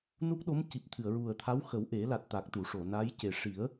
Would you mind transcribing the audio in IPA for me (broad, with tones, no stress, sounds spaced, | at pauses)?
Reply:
n u˦˥ k̚ ɗ o˧˥ m c i˨˩ p̚ t̪ʰ ɨ˨˩˨ ə̯ ɹ u˨˩ ə̯ t̪ʰ a˧˥ w x ə˨˩˦ w ʔ e˨˩˦ l a˨˩ t̚ t̪ a˨˩ k̚ t̪ u˨˩˨ ʂ o˨˩˨ n a˧˥ j c e˨˩ ʂ i˨˩˦ ə̯